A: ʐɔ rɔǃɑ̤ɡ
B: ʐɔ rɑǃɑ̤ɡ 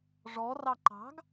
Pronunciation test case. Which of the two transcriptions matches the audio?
B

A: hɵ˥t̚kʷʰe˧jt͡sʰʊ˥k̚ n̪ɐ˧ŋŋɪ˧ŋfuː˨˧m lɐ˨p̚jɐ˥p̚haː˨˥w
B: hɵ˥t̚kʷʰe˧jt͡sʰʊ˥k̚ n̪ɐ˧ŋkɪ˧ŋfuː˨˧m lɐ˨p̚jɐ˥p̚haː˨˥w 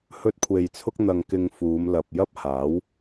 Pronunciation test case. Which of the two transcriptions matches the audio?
B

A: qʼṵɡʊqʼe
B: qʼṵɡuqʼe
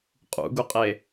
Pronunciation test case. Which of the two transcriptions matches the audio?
B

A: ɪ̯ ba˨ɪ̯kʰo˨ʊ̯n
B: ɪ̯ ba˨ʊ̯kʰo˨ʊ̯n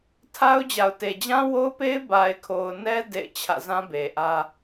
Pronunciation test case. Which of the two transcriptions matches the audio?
A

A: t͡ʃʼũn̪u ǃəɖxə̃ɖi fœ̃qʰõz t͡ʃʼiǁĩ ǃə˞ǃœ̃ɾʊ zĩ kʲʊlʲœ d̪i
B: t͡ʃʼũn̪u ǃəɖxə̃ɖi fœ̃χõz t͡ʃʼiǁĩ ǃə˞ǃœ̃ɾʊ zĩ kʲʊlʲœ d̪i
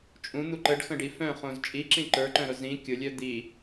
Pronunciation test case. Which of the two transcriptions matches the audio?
B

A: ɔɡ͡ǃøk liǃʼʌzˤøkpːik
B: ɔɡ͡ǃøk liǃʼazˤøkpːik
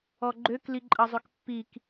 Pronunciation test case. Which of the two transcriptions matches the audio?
A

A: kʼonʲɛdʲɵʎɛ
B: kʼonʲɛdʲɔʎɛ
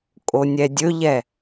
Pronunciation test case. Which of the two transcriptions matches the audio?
A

